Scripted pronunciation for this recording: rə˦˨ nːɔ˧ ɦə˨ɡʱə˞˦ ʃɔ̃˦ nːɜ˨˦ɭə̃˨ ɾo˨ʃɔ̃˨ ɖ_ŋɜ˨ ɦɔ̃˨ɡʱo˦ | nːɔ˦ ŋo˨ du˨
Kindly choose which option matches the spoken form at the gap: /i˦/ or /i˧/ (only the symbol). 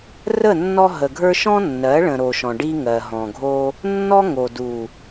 i˦